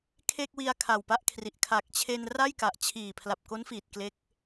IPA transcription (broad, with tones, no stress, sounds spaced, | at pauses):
kʰ e˥˩ k̚ w i˧ a̯ kʰ a˨˩ w p a˦˥ ʔ kʰ r i˨˩ ʔ kʰ a˨˩ k̚ t͡ɕʰ e˧ n r a˥˩ j k a˨˩ ʔ t͡ɕʰ iː˨˩ pʰ l a˨˩ p̚ k o˦˥ n f iː˨˩ t̚ k l e˦˥ k̚